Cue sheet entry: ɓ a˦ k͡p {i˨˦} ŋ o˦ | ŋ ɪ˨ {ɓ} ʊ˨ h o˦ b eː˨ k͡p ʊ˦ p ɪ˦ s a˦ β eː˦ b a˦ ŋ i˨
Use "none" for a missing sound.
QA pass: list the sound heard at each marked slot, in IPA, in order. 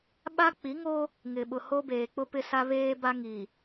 i˨˦, ɓ

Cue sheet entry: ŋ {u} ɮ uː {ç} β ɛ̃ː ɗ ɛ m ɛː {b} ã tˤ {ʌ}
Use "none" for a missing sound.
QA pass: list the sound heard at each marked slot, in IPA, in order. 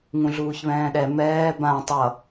ũ, ç, b, ʌ

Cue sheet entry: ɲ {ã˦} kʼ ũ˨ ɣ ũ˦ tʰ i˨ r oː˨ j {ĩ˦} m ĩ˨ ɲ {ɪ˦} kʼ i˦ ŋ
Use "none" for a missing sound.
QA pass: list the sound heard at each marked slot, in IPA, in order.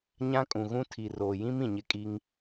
ã˦, ĩ˦, ɪ˦

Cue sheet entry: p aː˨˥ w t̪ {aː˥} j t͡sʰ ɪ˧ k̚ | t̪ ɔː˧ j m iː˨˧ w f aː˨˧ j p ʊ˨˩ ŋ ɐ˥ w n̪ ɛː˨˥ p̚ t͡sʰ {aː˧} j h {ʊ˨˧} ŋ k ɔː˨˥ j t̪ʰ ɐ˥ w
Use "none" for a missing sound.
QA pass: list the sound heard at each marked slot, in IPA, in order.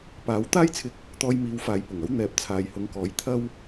aː˥, aː˨, ʊ˨˧

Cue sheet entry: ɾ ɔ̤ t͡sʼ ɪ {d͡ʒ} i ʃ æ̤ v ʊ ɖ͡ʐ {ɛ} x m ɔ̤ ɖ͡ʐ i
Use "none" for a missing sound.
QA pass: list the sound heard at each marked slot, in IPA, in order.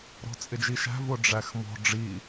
d͡ʒ, æ

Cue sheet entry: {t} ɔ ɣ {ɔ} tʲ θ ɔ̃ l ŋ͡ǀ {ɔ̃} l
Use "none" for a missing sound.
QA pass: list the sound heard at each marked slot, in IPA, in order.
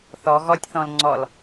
θ, ɔ, ɔ

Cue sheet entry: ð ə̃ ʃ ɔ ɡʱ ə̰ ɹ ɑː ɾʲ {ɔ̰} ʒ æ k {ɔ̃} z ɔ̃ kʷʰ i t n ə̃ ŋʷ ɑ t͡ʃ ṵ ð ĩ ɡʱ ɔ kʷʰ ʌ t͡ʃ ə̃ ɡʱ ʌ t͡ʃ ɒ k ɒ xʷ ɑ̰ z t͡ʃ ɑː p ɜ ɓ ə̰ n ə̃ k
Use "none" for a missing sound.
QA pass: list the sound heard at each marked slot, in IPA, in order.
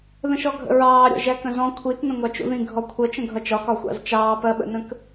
ɔ̰, ə̃

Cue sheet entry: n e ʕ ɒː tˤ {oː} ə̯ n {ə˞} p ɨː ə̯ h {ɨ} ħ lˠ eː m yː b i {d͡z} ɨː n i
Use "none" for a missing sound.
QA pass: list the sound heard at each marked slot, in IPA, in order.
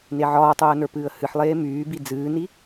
oː, ə˞, ɨ, d͡z

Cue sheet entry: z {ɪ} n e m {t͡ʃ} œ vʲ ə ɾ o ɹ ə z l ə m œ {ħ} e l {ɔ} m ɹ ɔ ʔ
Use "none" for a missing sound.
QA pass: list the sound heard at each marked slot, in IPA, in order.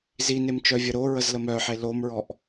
i, t͡ʃ, ħ, o

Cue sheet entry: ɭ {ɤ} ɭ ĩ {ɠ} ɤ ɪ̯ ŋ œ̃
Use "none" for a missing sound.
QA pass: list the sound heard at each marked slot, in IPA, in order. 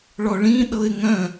ɔ, ɗ

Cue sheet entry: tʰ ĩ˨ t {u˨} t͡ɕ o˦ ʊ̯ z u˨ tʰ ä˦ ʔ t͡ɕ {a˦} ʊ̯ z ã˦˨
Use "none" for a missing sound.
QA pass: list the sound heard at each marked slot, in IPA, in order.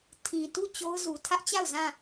u˦˨, a˦˨

